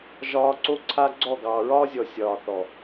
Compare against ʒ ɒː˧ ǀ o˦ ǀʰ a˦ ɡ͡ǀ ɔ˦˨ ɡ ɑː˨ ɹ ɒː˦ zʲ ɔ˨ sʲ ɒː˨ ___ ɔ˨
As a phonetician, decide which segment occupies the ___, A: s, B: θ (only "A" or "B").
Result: B